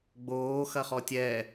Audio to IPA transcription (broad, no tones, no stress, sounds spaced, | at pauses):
ɡ͡b oː x ɐ χ ɔ tʲ ɛ